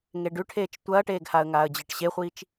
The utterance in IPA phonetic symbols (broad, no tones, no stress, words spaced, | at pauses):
ŋeɖʉʈʰeːt͡ʃ tʷɐːʈeːɡhaə̯ ŋaːə̯d͡ʑɨʈɕeχʷit͡ʃ